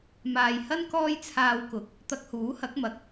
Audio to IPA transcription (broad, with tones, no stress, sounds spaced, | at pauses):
m aː˨ j h ɐ˥ n k ɔː˧ j t͡sʰ aː˨ w k ʊ˨˥ k̚ | t̪ ɐ˧ k̚ h uː˨˥ h ɐ˨˥ k̚ m ɐ˨ k̚